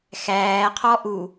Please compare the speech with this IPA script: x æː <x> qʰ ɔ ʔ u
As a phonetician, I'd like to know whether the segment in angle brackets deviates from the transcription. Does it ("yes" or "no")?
yes